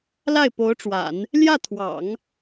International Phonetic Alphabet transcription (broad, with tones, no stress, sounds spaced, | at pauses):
l a˥˩ ɪ̯ p o˧˥ ʊ̯ ʈ͡ʂ w a̰˨˩˦ n | l j ä˥˩ t̪ʰ w ɑ̰˨˩˦ ŋ